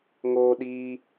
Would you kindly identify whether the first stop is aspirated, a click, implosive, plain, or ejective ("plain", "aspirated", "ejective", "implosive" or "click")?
implosive